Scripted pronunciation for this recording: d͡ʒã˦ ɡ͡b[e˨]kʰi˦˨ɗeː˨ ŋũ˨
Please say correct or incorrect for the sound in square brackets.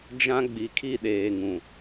incorrect